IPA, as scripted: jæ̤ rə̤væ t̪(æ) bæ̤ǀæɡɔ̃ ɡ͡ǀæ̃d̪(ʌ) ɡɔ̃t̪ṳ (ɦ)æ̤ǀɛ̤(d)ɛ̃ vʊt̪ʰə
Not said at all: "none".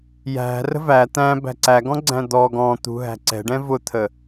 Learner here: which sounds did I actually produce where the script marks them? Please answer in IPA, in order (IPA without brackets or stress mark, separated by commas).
æ̃, ɔ, ɦ, ɖ